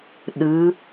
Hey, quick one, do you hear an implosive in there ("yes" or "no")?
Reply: yes